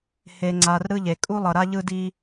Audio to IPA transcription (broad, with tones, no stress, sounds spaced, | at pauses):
h e˩ ŋ͡ǀ a˩ r ɾ ɯ˦ ʎ e˩ kʼ u˥ lˠ ʌ˨ ɾ a˥ ʎ ɯ˥ d i˥